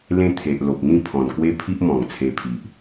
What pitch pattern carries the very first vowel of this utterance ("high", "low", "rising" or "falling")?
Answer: high